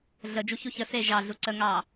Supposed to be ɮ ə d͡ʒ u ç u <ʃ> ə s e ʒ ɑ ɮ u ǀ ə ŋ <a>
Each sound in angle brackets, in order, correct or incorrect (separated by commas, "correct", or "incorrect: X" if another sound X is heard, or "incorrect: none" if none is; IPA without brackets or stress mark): incorrect: ç, incorrect: ɑ